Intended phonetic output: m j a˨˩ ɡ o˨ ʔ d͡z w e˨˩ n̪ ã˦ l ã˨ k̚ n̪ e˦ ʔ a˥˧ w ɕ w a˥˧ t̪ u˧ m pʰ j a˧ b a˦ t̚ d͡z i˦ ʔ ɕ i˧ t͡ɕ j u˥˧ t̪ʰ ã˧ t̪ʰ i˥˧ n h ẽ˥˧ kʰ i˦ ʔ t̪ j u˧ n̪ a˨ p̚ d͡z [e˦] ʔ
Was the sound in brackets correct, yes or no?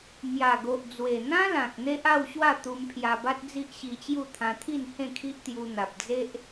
yes